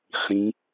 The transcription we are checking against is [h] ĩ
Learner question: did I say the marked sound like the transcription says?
no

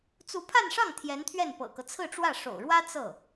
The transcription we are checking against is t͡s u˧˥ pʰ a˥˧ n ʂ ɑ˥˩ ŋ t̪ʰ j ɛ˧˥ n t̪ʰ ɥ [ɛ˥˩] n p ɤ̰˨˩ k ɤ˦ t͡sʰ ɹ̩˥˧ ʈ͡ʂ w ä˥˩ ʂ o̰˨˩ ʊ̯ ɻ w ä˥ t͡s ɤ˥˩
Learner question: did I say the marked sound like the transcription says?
yes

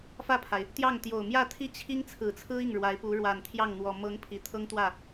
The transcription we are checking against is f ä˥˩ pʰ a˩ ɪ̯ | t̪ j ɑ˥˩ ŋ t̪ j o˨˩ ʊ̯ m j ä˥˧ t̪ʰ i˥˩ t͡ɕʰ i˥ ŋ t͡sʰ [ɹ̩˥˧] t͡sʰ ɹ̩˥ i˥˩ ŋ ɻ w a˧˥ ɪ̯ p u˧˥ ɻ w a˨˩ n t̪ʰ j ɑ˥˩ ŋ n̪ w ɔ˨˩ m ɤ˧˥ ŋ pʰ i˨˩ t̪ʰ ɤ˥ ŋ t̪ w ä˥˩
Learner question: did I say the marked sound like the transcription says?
no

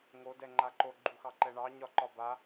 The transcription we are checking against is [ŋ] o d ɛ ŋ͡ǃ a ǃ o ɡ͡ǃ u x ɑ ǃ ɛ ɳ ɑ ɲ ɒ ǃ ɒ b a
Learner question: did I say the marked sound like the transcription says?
yes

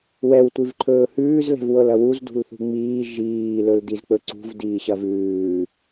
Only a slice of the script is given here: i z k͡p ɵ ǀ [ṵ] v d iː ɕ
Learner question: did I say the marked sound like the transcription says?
no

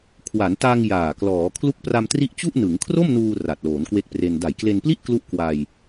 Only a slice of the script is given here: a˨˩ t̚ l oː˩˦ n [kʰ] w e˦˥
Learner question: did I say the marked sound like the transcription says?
no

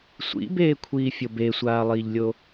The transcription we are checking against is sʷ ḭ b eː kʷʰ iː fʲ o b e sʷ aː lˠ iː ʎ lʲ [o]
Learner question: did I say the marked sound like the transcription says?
yes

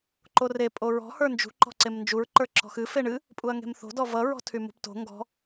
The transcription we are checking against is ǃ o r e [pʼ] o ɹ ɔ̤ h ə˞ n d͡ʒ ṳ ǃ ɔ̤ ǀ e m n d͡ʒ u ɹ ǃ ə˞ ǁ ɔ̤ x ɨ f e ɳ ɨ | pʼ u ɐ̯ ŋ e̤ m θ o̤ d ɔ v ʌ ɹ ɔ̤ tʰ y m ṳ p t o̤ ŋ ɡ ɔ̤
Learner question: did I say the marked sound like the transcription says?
yes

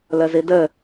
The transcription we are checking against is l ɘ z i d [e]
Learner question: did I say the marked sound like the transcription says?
no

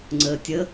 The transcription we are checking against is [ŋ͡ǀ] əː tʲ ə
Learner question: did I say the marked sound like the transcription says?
yes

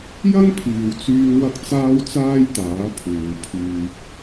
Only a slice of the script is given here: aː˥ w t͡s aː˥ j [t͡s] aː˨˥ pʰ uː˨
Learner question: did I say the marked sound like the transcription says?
no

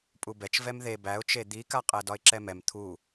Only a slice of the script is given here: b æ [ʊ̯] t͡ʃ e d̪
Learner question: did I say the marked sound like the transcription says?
yes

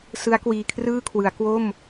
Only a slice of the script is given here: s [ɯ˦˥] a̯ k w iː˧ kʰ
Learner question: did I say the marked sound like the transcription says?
yes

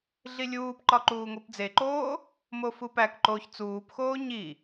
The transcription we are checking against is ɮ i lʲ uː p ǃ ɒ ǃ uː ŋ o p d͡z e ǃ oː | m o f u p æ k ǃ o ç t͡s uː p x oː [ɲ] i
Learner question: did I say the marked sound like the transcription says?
yes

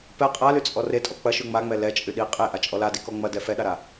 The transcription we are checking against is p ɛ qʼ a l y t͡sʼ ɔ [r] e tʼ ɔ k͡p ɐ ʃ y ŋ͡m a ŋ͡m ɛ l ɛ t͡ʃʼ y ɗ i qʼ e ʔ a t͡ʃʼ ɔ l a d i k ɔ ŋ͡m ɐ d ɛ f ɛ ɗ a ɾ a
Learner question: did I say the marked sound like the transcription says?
yes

